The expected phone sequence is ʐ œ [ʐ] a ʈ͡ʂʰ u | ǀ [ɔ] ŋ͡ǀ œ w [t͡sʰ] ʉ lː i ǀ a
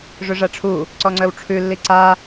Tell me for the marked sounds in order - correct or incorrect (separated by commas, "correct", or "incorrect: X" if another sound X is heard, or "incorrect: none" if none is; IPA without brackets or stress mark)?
correct, correct, incorrect: ʈ͡ʂʰ